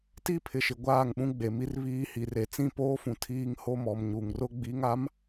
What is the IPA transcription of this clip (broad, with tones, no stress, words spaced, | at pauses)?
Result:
ti˦˨pʰɪ˨ʃɪ˨ ɡʷaː˦˨ŋɓũ˦ɡ͡be˨mi˦r βiː˦hi˨re˨ t͡sĩ˦˨poː˦fũ˨ tʰiː˦ŋho˦mɔ˨m ɲu˨ŋrʊ˦ ɡ͡bi˨˦ŋa˨˦m